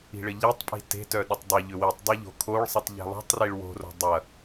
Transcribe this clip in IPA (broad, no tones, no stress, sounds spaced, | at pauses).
i̤ ɭ ɘ ʎ e tˤ pʼ i̤ t e̤ t œ ɗ ɐ tˤ dˤ ɐ ʎ ʏ w i tˤ dˤ e ʎ o̤ kʰ o ɭ sˤ i tˤ ʎ e̤ lˠ o̤ tˤ r i ɭ w o̤ r o̤ dˤ ɐ